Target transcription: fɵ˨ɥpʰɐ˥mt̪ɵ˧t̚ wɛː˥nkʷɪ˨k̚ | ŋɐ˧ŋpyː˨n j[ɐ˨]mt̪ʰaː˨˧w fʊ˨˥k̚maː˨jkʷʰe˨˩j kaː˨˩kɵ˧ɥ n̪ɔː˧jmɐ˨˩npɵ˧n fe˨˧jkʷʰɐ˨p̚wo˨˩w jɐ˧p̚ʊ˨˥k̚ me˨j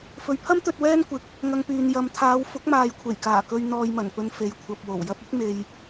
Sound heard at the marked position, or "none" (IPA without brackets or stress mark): ɐ˨